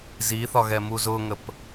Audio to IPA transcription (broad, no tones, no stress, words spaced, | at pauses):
ziθɒɣɛmu zʊŋəp